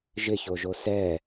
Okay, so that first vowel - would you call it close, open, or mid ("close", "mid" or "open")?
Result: close